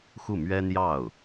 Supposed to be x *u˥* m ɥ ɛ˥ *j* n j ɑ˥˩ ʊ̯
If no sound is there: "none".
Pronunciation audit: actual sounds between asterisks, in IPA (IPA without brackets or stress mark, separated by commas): u˥˩, none